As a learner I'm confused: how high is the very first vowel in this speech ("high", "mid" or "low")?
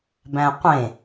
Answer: low